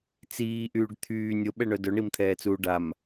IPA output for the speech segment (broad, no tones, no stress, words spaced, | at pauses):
t͡siːʔyːɖ t̪ʰyː nʲoɓɛɳœ dœɳimt̪ʰɛːt͡suː ɖam